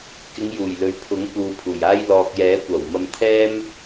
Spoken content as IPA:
k ɪ˨˧ ŋ j uː˨˩ j l ɵ˨ ɥ pʰ ʊ˨˥ ŋ p uː˨ pʰ uː˨˩ j aː˧ j l ɔː˨ k̚ j ɛː˨˥ kʷ ɐ˨˩ w m ɐ˧ m t̪ʰ ɛː˥ m

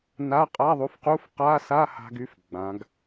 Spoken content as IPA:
n a˧˥˧ qʼ a˧˥˧ ðˤ u˨˥ f q u˧˥˧ f q a˧˥˧ s a˧˥˧ h a̤˥ ɡ y˥ f ɡ͡b ã˩˧ ɡ

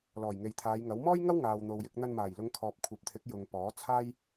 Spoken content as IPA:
l ɔː˨˩ j ŋ e˨ j t̪ʰ aː˨˧ j ŋ ɐ˨˥ w m ɔː˥ j ŋ ɐ˥ w ŋ aː˨ w n̪ o˨ w j ɪ˧ k̚ n̪ ɐ˧ n m aː˨˩ j l ʊ˨˧ ŋ kʰ ɔː˨ p̚ kʷʰ ɐ˨˥ p̚ t̪ʰ ɪ˨˥ k̚ j ʊ˨ ŋ p ɔː˨˥ t͡sʰ aː˥ j

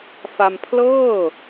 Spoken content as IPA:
f a˧ m pʰ l ɤː˥˩

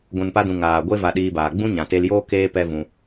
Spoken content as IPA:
ɡʷ ũ˨ n p a˧ d ũ˨ ŋ aː˨ ɡʷ e˦ v a˧ ɗ iː˧ b aː˨ ɡ͡b ũ˦ ɲ ã˨ t e˧ l j oː˦ k eː˦ p ɛ˦ v ũ˧

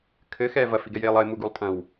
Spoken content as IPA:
kʰ ɘ x ɛː v ɐ f i ɡ ɛ j eː lˠ ɐ ɪ̯ m u ɡ u lˠ tʼ ɐ̃ w

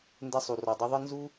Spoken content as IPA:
n d ɛ˧ sˤ u˩ r ɔ˩ dˤ ɨ˧ ðˤ ɨ˥ n z u˥

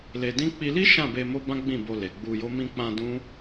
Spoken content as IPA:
l e˧ d ĩ˦ k͡p i˧ l i˦ ʃ ã˦˨ b e˧ m o˦ b ã˦ ɡ͡b ĩ˦˨ b o˧ l e˨ ɡ͡b u˧ j o˦ m ĩ˧ k͡p ã˧ d ũ˦

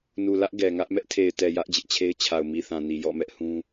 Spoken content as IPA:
n u˨ l ä˦ ʔ ɡ ɛ˨ ŋ ä˦ ʔ m ɛ˦ ʔ tʰ e˨ ɪ̯ t ɛ˨ j ä˦ ʔ d͡ʑ ɪ˦ ʔ t͡ɕʰ e˦ ɪ̯ t͡ɕʰ a˨ ʊ̯ m i˨ θ ã˨ n i˨ j ɔ̰˦˨ m ɛ˦ ʔ h ũ˦

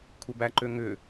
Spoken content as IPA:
kʷʰ ə b æ ǃ ø ŋ ʏ

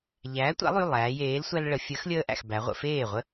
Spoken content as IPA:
ʎ æː˨˥ tʷ a̰˨˥ lˠ y˩˧˩ lˠ æː˩˧ j eː˨˥ l sʷ æ˦ l ɭ ə˩˧ fʲ əː˨˥ x lʲ əː˦ ʔ æ̰˥˩ x b æ˩˧ ʁʷ ə̰˩˧ f eː˥˩ ʁʷ ə˦

